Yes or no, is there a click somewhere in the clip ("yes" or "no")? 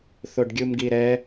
no